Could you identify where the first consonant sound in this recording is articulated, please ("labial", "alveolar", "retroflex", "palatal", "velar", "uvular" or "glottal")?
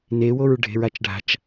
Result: alveolar